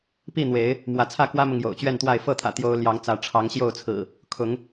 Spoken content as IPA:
p i˥˨ n̪ w e˨˦ ɪ̯ | m w ä˨˦ t͡sʰ ä˥˨ k w ä˦ m ʊ˨ ŋ j o̰˨˩ ʊ̯ t͡ɕ ɥ ɛ˥˨ n t̪ w a˥˨ ɪ̯ f ɤ˥˨ t̪ʰ ä̰˨˩ t̪ j o˦ ʊ̯ l j ɑ˨˦ ŋ t͡s ä˨˦ ʈ͡ʂʰ ɑ˨˦ ŋ ɕ j o˥˨ ʊ̯ t͡sʰ ɹ̩˨˩ | kʰ ʊ˨˦ ŋ

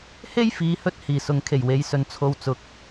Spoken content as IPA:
h e˥ j f iː˨˧ h ɵ˥ t̚ h iː˨˩ s ʊ˨˥ ŋ kʰ e˨˩ j w e˨˧ j s ɵ˨ n t͡sʰ o˧ w t͡s ʊ˨˥ k̚

